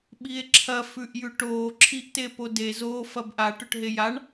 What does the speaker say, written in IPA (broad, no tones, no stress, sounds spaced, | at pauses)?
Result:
ɓ i e̯ ǁʰ ɐ f ʉ ʔ j ʉ ʈ oː ǁʰ i ʔ t e p o d e z o f ɐ b ʔ a ʈ ɵ ʈ ɦ e j a ɳ